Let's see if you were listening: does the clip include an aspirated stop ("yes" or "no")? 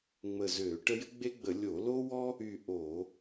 no